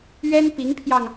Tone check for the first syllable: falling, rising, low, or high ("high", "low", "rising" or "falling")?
high